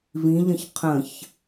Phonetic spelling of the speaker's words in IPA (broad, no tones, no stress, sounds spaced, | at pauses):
v ĩ ʎ ə̃ ç qʰ ə̃ ç